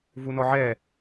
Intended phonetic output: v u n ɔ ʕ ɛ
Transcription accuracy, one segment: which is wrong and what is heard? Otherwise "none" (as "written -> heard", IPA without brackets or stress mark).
none